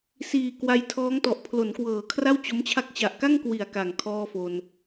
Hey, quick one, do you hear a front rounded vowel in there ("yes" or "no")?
no